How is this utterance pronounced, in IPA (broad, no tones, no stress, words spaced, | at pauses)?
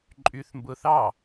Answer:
ǃʼyθmbʊːθ ɑ